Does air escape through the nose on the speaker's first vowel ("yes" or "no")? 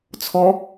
no